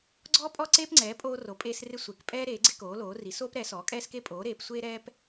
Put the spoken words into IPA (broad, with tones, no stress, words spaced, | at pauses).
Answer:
ɡ͡ǀɔː˦pʼɔ˦ǀeː˦pŋ͡ǀɛː˩˥ pʼoː˦ro˩˥pʼeː˦srɪ˦ sʷe˩˥k pʼɛː˦ ɾeː˩˥ɡ͡ǀɪ˦koː˩˥loː˩˥ ri˩˥soː˦pɾɛ˩˥ sɔː˩˥kʼɛː˦ske˦ pʼoː˩˥ɾeː˩˥psʷeː˦ɾɛː˦p